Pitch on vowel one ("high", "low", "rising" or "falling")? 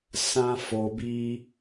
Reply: high